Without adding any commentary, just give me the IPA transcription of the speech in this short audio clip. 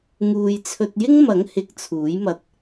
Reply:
ŋ uː˨ j t͡sʰ ɵ˧ t̚ j ɪ˥ ŋ m ɐ˨˥ ŋ h ɪ˨˥ k̚ t͡sʰ uː˨˥ j m ɐ˧ t̚

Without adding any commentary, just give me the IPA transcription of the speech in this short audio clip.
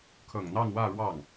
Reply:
kʰ ɤ˨˩ ŋ n̪ ɑ˥˧ ŋ w ä˥˧ ɻ w ɑ˥˩ ŋ

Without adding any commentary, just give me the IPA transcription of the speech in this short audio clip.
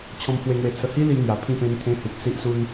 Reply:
t͡ɕʰ ɔ̃˧ m pʰ w e˧ ŋ w e˧ t͡sʰ ə˧ h i˦ l i˧ ŋ j a˧ pʰ ĩ˥˧ p ẽ˦ n t̪ʰ ẽ˦ h u˨ p̚ s i˦ ʔ s u˦ n

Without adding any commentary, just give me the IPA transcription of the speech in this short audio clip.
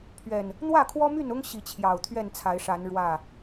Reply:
pʰ ɥ ɛ˨˩ n | n̪ w ä˥˨ kʰ w ɔ˦ m y˥˨ n ʊ˦ ŋ ɕ i˨˦ t͡ɕʰ j ɑ˨˩ ʊ̯ t̪ʰ ɥ ɛ˥˨ n t͡sʰ a˨˦ ɪ̯ ʂ a˨˦ n ɻ w ä˥˨

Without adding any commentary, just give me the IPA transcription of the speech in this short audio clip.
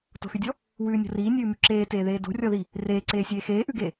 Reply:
t o̤ x y dʲ ɔ | w ʉː nʲ o̤ r iː nʲ ʉː m y ǁ eː t eː ð eː d o̤ rʲ ɔ ð i | r eː ǀ eː sʲ eː x eː ʔ ʉ ɡ e

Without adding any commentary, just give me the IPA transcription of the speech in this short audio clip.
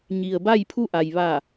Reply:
ɲ i˩ ə̯ b a˥˨ j pʰ u˥˨ ʔ a˩ j ʋ a˧˩

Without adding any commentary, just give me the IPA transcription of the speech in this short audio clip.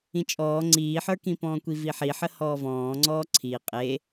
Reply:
ĩ t͡ʃʼ ɔː ŋ͡ǀ iː ħ ə˞ k ĩ p ɔ̃ː kʷ i v i ħ i ħ ə h ɔː v ɔ̃ː ŋ͡ǀ ɔː ǀʰ i qʼ e

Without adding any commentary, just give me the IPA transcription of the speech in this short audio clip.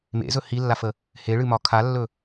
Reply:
m ḛ z ɵ h i lː a f ə | h e ɭ ɨ m ɒ kʰ a lː ɵ

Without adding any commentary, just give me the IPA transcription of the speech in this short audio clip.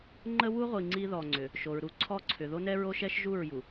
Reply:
ŋ͡ǃ ə˦ w u˦ ʁʷ i˨ ŋ͡ǀ i˦ ð ɔ˨ ŋ͡ǀ ʏ˨ | ʃ o˨ ɹ ɾ u˦ ǀʰ ɔ˦ ǀʰ ʏ˨ ð o˦ n ɛ˦ ɹ o˦ ʃ ɛ˦ ʃ ʒ u˦˨ ɹ j u˨

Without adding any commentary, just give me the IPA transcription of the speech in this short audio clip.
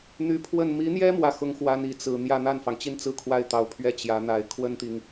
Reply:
n̪ y˧˥ pʰ w ə˥˩ n m i˧˥ n̪ j ɛ˥ m w ä˥˩ x ʊ˥ ŋ x w a˥ n i˨˩ t͡s ɹ̩˥˧ n̪ j ä˥˧ n̪ a˥˩ n f ɑ˩ ŋ t͡ɕ i˥˧ n t͡s ɹ̩˥˧ kʰ w a˥˩ ɪ̯ t̪ ɑ˨˩ ʊ̯ pʰ ɥ ɛ˥˩ t͡ɕ j ä˧˥ n̪ a˨˩ ɪ̯ kʰ w ə˥ n t̪ i˨ ŋ

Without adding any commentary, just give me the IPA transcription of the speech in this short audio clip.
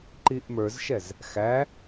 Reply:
ǃ i ʔ m ə˞ z ʃ ɛ z | x æ

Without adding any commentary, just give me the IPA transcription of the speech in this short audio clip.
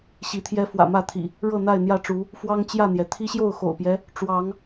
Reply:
ɕ i˨˦ t̪ʰ j ɛ˦ f w ä̰˨˩ m ä˥˨ t̪ʰ ḭ˨˩ | ɻ ɤ˥˨ n̪ a˥˨ ɪ̯ n̪ j ä˥˨ ʈ͡ʂ u˨˦ | f w ɑ˦ ŋ t͡ɕ j ä˥˨ n̪ j ɛ˩ t̪ʰ i˦ ɕ j o˥˨ ʊ̯ x o̰˨˩ ʊ̯ p j ɛ˦ | ʈ͡ʂ w ɑ˨˦ ŋ

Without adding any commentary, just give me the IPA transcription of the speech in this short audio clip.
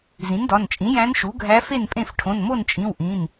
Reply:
z ĩ˩˥ n d ɒ˩˧˩ n t͡ʃʼ ĩ˩˥ j æ̃˧˥ n ʃ u˩˥ ɡʱ æ˧˥ f e˥˨ n pʼ ẽ˥˨ f ʈʰ õ˩˧˩ n m o˥˨ n t͡ʃʼ ĩ˩˧˩ w ʔ ĩ˩˧˩ n

